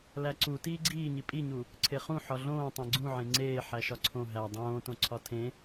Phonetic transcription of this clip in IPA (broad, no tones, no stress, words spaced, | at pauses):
læǀu tiːɡ͡ǀiːɲi pʼiɲu | ǀʰeχũ ħɒɮõː tˤẽɡ͡ǀũʕẽ ŋ͡ǀeː ħæʃɒǀʰõ ɦæ dˤõːtõǀʰɒ tʰẽ